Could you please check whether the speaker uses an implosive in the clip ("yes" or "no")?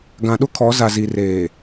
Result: yes